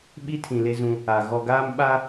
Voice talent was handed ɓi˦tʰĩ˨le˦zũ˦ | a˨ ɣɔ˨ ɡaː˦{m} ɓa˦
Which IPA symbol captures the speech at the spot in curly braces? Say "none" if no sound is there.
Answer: m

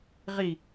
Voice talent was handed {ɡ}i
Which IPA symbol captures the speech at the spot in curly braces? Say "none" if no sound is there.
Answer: ʁ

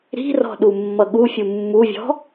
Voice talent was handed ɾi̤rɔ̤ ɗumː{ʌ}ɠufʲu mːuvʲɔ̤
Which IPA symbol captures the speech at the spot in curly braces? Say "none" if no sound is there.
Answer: ʌ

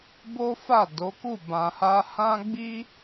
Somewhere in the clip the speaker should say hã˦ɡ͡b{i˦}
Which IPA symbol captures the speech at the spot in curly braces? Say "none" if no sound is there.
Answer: i˦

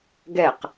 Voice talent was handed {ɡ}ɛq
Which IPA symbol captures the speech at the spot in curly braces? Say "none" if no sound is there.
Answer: ɡ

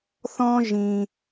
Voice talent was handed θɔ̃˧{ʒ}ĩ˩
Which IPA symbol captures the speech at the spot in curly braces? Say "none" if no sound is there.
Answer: ʒ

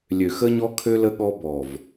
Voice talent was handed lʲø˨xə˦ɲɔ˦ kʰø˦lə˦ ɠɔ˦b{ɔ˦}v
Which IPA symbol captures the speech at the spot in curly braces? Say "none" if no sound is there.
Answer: ɔ˨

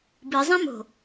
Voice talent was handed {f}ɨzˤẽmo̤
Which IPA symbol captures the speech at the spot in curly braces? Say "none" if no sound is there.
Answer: b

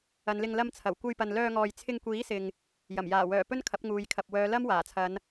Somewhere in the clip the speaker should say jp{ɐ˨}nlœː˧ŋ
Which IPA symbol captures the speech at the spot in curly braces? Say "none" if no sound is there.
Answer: ɐ˨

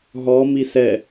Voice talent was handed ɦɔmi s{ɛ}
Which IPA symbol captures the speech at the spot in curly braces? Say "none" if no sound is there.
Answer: ɛ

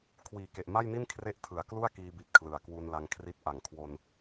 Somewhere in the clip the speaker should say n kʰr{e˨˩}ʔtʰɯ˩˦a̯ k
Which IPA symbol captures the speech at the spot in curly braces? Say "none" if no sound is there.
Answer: e˦˥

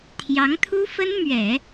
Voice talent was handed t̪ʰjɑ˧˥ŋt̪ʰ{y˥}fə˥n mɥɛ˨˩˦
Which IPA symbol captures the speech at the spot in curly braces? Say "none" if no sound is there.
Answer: u˥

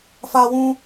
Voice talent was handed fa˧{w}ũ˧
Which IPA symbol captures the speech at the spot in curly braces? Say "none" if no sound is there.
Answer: w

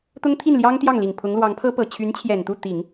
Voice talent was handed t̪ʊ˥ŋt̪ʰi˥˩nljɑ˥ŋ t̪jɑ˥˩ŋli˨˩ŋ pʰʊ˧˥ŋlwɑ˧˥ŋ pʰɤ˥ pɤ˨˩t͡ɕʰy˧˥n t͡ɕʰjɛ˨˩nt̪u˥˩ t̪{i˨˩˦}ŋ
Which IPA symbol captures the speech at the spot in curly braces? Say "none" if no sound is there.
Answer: i˨˩˦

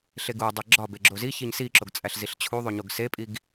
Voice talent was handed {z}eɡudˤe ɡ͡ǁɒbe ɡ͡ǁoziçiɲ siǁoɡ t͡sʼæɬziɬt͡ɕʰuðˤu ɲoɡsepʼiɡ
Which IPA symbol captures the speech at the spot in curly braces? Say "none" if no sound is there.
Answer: ɬ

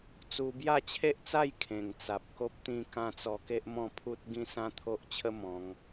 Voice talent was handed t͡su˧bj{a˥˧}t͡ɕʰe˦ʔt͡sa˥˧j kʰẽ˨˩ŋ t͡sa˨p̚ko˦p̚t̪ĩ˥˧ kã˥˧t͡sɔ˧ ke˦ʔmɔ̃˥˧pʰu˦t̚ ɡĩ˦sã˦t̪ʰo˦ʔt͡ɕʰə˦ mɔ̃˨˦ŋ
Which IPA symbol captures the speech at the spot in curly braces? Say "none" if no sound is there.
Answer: a˥˧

